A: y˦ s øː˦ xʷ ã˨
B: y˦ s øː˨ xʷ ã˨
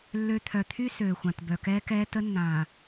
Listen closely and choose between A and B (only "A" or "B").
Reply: B